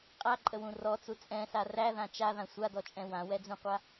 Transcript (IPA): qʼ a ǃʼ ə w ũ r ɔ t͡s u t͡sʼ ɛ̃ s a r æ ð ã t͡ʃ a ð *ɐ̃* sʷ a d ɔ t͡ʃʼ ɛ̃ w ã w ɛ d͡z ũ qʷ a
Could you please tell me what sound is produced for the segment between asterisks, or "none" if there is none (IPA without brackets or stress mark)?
ã